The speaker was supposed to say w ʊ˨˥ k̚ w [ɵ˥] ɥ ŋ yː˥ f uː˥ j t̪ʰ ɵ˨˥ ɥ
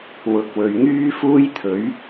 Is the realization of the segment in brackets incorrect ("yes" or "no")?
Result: yes